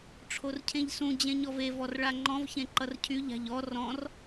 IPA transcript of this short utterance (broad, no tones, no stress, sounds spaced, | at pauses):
ʈ͡ʂʰ o r cʰ ẽ ʎ s ũ d͡ʑ ẽ ɲ ɔ v e v ɔ r ɭ a ŋ͡ǃ ɔ̃ v ç ẽ ǃ ʌ r cʰ y ʎ a̤ ʎ ɔ r ɔ̃ r